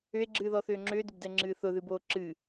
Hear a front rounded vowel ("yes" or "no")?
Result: yes